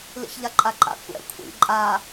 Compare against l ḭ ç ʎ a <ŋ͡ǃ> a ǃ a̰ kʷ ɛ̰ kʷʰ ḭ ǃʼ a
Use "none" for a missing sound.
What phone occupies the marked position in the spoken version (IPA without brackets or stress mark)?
ǃʼ